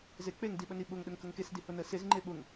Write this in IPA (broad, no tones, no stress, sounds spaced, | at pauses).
z e k͡p e ŋ d i ɓ ə n i ɓ ʊ ŋ ɗ ə ŋ k ə ŋ k e s d i h ʊ n ə s e z ŋ͡ǃ e ɓ ʊ ŋ